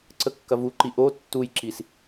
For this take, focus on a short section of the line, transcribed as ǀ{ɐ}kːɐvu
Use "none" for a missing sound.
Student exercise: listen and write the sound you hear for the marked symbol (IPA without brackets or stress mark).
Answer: ə